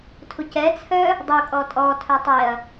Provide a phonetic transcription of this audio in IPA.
tʰ u c ɛ t͡sʰ œ | dˤ u kʼ ɔ tʼ ɔ tʰ œ tˤ e ɐ̯

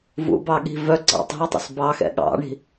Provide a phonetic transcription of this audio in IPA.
v ṵ b ɑ ɠ i̤ v œ ɡ͡ǀ ɑ̰ tˤ i̤ ʊ̯ tˤ ṵ s b ɑ x ɛ̰ ɠ ɑ̰ ɳ i̤

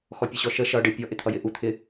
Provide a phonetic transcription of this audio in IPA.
x ɔ pʲ ə ɕ ɔ ʃ ə ʃ ʌ ɖ ɪ pʲ ɔ ʔ ɪ t̪ʰ ʌ j ɪ ʔ u t̪ʰ ɪ

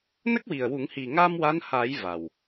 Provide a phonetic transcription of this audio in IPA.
n ə˦˥ k̚ w i˨˩ ə̯ w u˨˩˦ ŋ h i˨˩ ŋ aː˧ m w a˧˥ n h a˨˩˦ j v a˨˩ w

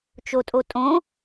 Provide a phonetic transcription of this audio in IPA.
t͡ʃ o tʼ o tʼ õ

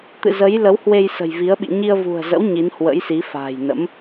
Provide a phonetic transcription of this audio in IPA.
t̪ ɨ̰˧˨ z ə˨˦ j l ə˨˦ w h w e˧ j s ə̤˨˩ j v i˨˦ ə̯ ɓ ḭ˧˨ ɲ i˧ ə̯ v ṳ˨˩ ə̯ z ə̰˧˥ w ɲ i˨˦ n h w ə̰˧˥ j s i˨˦ f a̤ː˨˩ j n ə̰˧˥ m

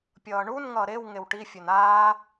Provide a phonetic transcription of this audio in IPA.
pʲ ʌː ɳ u n ŋ ʌː ɾ e w ŋ e w ʈ i fʲ ɵ n aː

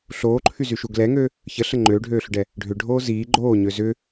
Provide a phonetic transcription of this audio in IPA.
ɬ oː ǃʰ y z y ʃ u ɡ l ɛ ŋ ø | ç ə ɬ ə ŋ͡ǃ øː ɖʱ øː ɬ ʏ ɖ ɛ | ɖʱ ʏ ɖʱ oː z iː ɡ͡ǃ oː ɲ ø z ʏ

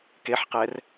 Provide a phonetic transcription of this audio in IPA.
k e ħ q ɛ r

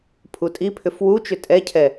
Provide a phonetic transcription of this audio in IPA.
pʰ u tʼ i pʰ ʏ f w u t͡ʃ ʏ tʼ ɛ cʰ ɛ

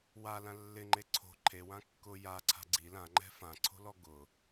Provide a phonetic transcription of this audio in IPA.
w a l ã lː ɪ ŋ͡ǃ e ǀʰ o̤ ǃʰ e w ã kː ʊ j a ǀʰ a̤ ɡ͡ǀ i l ã ŋ͡ǃ ɛ̤ f ã ǀʰ o̤ l ɔ ɡ ʊ

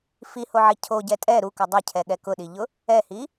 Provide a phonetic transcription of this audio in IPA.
f i h o ʕ i cʰ o ɟ ɛ tʼ ɛ ɾ u k ʊ dˤ ʊ cʰ ɛ ɠ ɛ k ʊ ɗ i ʎ ʊ | ɛ h i

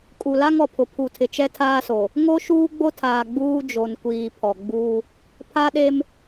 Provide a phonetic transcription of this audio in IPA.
kʼ u˨ l a˦ ŋ ɔ˨ pʰ ʊ˨ pʰ u˨ tʰ ɪ˨ t͡ʃ ɛ˦ tʰ aː˦ s o˨ | ŋ o˦ ʃ uː˦ ɡ͡b o˦ tʰ aː˨ ɡ͡b uː˦ d͡ʒ o˨ n kʷ iː˨ pʰ ɔ˨ ɡ͡b uː˦ | pʰ a˦ ɗ e˦ m

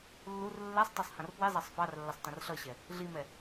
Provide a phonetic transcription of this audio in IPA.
lː u r lː ɛ sˤ tˤ ɛ sˤ h ɐ̃ r p w i zˤ ɑ sˤ f ɑ r lː ɐ sˤ t ɐ̃ r ɬ ʌ ɕ ɛ | ɮ i m ɛ

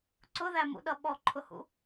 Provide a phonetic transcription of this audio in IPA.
ǀ ʊ ð æ m ṵ ɗ ʌ ɓ ɔ ǃʰ ʊ h ṵ

